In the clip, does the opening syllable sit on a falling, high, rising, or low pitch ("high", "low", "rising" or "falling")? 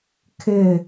falling